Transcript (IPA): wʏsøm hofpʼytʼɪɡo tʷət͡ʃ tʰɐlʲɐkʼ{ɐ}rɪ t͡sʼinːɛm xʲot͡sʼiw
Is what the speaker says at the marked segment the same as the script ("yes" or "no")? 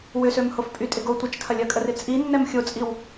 no